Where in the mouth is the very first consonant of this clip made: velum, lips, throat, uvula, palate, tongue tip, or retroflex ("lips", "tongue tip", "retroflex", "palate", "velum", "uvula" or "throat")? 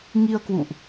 velum